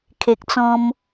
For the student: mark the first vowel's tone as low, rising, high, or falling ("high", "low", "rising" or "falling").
low